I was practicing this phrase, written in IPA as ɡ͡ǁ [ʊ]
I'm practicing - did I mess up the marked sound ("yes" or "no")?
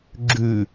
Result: yes